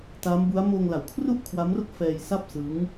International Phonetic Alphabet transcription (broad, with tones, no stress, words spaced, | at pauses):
ta˦˥mbu˦˥a̯ moː˧ŋla˨˩wkʰru˥˩ʔ kʰwa˦˥mro˥˩k̚ fɛː˧jsa˥˩p̚ sɯ˦˥ŋ